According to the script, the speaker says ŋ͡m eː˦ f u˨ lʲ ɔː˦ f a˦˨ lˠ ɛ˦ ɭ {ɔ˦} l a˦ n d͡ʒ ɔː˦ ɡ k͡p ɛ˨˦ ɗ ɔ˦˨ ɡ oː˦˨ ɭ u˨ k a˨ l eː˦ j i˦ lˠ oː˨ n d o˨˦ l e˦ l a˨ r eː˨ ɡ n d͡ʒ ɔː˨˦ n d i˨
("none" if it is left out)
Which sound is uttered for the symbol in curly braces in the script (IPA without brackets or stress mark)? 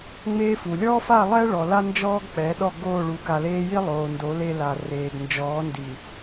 ɔ˨